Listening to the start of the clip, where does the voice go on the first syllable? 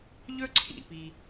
high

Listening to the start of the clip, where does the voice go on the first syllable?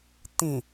low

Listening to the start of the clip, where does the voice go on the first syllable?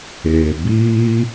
low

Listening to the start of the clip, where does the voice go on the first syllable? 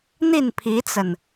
falling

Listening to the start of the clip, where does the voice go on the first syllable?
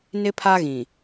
high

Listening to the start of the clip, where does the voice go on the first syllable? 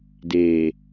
low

